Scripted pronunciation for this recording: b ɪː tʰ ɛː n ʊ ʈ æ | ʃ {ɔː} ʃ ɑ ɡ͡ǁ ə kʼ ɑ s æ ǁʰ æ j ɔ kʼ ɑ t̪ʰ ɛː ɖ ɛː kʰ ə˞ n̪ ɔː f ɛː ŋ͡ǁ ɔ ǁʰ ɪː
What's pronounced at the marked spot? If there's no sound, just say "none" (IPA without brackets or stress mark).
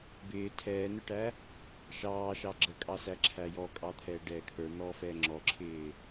ɑː